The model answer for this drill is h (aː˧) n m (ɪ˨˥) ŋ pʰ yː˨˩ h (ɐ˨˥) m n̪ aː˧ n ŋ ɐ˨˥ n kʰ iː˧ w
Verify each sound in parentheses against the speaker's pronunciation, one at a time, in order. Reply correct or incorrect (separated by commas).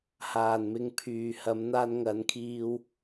incorrect, incorrect, correct